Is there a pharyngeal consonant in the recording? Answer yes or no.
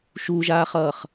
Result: no